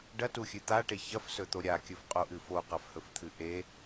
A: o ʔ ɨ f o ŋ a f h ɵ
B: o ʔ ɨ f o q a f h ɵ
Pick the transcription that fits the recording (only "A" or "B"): B